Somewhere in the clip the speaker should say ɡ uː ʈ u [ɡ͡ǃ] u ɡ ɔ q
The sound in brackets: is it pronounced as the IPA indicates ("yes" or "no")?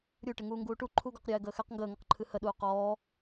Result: no